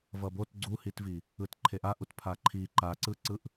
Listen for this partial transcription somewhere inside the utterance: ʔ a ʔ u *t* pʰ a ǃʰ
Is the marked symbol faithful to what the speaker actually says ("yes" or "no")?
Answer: yes